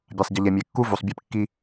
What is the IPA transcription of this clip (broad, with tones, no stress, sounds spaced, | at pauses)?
bʲ a˨ sˤ ɟ ɘ˨ ʎ ɛ˨ mʲ e˨˦ kː u˦ v u˨ sˤ bʲ ɛ˦ p kː i˦